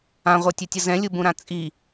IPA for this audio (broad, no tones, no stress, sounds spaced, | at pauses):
ã ʁʷ ə˞ tʲ ɵ tʲ ə z ɛ̃ lʲ u b ũ ɾ ã t͡sʼ i